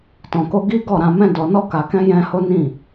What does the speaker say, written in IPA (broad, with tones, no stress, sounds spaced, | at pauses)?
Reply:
t ɔ̃˧ k o˦ ɡ i˦ ɡ ɔ˦˨ ɾ ã˧ m ɛ̃˦ d ɔ˧ n ɔ˦ k a˧ k ɛ̃˦ j ɛ̃˦ h o˦ n ĩ˦˨